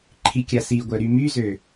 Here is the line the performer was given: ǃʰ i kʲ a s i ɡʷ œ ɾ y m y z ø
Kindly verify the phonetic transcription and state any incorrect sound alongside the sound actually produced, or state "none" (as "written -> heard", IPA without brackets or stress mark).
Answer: none